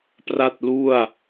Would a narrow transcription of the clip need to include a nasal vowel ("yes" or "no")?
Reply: no